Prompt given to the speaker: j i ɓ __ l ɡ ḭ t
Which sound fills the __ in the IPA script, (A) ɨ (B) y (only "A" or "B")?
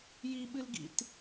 A